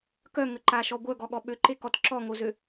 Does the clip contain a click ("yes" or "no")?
yes